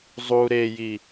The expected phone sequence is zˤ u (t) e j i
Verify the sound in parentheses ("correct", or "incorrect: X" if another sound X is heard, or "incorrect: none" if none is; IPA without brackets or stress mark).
incorrect: ɾ